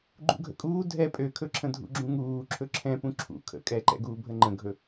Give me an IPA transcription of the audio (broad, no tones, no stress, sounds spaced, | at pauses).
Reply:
ɡ͡ǃ ṵ ɡʱ ə̰ kʼ uː dʱ ɛ pʼ ø kʰ ɵ ǁʰ ə̃ dʱ ṵ ɡ͡ǁ ũ ŋ uː ǁʰ ɵ ǁʰ ɛ̃ p ũ ǁʰ ṵ kʰ ə̰ kʼ ɛ ǃ ɛ̰ ɡ uː bʱ ə ŋ͡ǃ ə̃ ɡʱ ɵ